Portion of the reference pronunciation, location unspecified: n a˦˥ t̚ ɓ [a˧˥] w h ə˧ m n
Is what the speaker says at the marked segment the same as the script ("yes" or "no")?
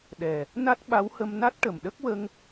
yes